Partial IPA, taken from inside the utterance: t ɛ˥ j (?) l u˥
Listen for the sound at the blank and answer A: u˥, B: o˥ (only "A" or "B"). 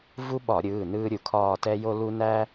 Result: B